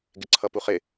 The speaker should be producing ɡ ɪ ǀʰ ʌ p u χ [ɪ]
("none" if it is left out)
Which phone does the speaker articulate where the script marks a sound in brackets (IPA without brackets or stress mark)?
ɪ